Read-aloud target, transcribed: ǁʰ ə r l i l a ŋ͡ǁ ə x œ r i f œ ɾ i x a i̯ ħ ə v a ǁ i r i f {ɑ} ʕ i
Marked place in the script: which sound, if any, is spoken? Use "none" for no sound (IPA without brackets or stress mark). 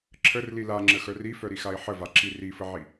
ə